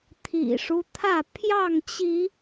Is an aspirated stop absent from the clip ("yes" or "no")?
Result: no